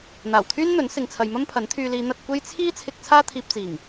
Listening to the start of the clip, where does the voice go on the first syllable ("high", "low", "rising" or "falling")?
low